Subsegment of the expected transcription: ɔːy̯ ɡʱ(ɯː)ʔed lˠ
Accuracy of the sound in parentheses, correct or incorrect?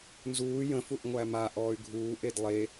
incorrect: uː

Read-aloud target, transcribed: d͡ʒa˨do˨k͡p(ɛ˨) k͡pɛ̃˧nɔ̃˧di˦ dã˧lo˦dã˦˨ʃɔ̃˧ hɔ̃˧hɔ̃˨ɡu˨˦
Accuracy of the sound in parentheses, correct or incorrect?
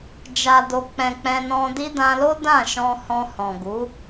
incorrect: ɛ̃˨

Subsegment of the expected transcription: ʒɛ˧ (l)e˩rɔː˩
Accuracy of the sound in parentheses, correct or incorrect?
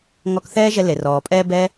correct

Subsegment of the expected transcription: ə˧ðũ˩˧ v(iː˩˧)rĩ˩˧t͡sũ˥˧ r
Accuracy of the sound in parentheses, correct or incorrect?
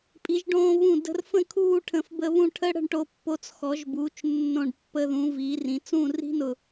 correct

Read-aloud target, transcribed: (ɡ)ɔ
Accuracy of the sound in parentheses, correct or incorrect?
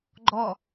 incorrect: ɡ͡ǃ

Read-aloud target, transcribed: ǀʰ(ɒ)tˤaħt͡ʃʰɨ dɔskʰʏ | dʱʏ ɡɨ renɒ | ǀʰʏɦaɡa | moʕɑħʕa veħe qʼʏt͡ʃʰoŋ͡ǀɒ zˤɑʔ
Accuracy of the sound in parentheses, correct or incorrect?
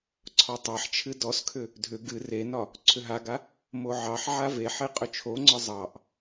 correct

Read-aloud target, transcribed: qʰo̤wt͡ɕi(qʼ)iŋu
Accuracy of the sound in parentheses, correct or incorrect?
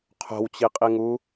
correct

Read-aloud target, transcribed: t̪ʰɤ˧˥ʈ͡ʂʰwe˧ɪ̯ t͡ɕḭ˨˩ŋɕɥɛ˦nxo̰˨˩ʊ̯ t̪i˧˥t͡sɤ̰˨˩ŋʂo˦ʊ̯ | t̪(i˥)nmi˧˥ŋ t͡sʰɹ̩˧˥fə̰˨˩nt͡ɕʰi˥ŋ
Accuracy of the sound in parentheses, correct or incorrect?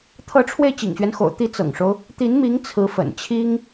incorrect: i˧˥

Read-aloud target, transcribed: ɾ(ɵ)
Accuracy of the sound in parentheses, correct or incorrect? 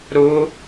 incorrect: ʊ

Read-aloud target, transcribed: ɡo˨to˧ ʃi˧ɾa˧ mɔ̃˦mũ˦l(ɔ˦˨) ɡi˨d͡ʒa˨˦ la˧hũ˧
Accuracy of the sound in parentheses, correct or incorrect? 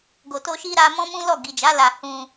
correct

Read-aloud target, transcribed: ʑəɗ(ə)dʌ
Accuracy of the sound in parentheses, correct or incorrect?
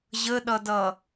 incorrect: ʌ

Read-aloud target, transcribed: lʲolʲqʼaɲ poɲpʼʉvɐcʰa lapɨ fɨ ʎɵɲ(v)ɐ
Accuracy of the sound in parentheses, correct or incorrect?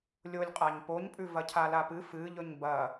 incorrect: b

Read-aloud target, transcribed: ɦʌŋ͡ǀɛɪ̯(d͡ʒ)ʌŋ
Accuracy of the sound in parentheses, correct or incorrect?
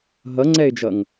correct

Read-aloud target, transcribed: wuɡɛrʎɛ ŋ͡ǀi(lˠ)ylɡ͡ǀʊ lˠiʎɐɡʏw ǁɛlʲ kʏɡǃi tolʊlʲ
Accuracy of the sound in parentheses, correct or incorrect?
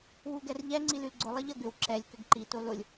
incorrect: l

